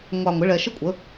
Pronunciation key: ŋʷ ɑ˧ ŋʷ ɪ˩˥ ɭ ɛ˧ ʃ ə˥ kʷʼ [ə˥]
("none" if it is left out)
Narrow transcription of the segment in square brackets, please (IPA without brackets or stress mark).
ə˩˥